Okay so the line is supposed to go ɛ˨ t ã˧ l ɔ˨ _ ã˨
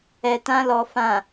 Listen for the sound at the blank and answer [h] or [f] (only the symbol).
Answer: f